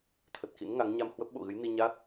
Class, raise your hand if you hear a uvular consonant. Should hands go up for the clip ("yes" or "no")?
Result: no